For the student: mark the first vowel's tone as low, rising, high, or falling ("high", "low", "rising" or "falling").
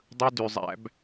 high